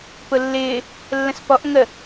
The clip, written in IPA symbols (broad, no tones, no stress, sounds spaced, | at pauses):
p ʊ lː ɪː | lː ə̃ s p ɔ ʔ ŋ ə